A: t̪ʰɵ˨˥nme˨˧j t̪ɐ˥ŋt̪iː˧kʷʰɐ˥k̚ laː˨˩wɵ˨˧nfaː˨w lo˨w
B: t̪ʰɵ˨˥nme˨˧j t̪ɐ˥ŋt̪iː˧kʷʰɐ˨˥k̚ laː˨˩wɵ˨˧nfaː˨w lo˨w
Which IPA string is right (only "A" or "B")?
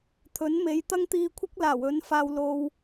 A